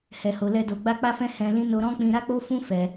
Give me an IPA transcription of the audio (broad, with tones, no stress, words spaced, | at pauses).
hɛ˨ho˨lɛ˧do˨ ɡ͡ba˧k͡pa˧fɛ̃˧ hɛ̃˧lĩ˦ no˧ɾɔ̃˦k͡pĩ˧ ɾa˦k͡po˦fũ˦ fɛ˧